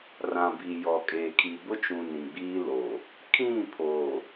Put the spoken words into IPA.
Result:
r ã˨ b i˨ j ɔ˨ kʼ eː˨ kʰ i˨ b ʊ˦ t͡ʃ ũ˨ n ĩ˨ ɡ͡b iː˦ l oː˨ | kʰ ĩ˦˨ pʰ oː˨

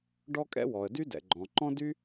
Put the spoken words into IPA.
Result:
ɖ ɔ˥ kʼ ɛ̰˥ w ɔ˩ ə̯ d y˥ d ɛ̰˩ ɡ͡ǃ ɔ̃˩ ǃ ɔ̃˥ d y˥

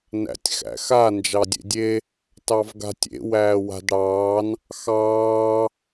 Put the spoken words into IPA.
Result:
n æ̰ tʲ x æ̰ x a n d͡ʒ ɑ dʲ ḛ dʲ e | t ɑ v ɡ a̤ tʲ ḛ w æː w a̤ d ɽ ɑː n | x ɑː

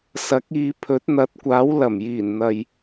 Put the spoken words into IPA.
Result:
s ɐ˨˥ k̚ iː˨˧ pʰ ɵ˨˥ t̚ n̪ ɐ˨˥ t̚ kʷ aː˨˥ w l ɐ˨˩ m j iː˨˩ n n̪ ɐ˨ j

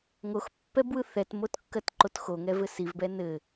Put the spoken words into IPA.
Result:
ŋ o x pː ɛ b w ɯ θ ɛ t m o t kː ɜ t ǃ o t x o ŋ ɛ v ɘ s i v b ɛ n ɘ

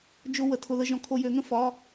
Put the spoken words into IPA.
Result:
d͡ʒ ʊ˧ w ə˩˧˩ tʰ ʊ˧ ð ə˧˥˧ ʒ ɔ̃˧ kʰ o˧ j ø˨˥ ŋ ə̃˥˨ f ɒ˧˥˧

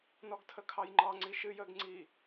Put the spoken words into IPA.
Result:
n ɔ ɡ tʰ ə kʰ ɑ j ŋ͡ǃ ɑ ŋ͡ǀ i ʃ ɨ j ə ɡ ŋ͡ǀ i

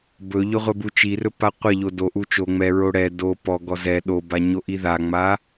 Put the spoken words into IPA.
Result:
b ɵ ʎ ɵ ʁʷ ɛ b u t͡ʃ i r ɵ p a qʷ ɛ ʎ o d o ʔ u t͡ʃ o ŋ͡m ɛ ɹ o ɽ ɛ d o p ɔ ɡ ɔ z ɛ ɗ o b a ɲ o ʔ i ð a ŋ͡m a

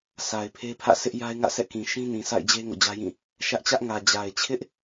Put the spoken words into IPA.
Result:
sʰ a˨ ɪ̯ pʰ e˦ pʰ ä̰˦˨ s ɪ˦ ʔ j a˦ ɪ̯ ŋ ä̰˦˨ s ɛ̰˦˨ k ĩ˨ ʃ ĩ˦ n ĩ˨ s a̰˦˨ ɪ̯ d͡ʑ e˦ ŋ o̰˦˨ d͡ʑ ä˦ j ĩ˦˨ | ʃ ä˦ ʔ t͡ɕ ä˦ ʔ ŋ ä˨ d͡ʑ a˨ ɪ̯ t͡ɕʰ ɪ˦ ʔ

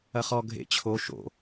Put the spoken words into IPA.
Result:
ɐ χ ɔ ɡʱ ḛ t͡ɕʰ o ʃ o̰

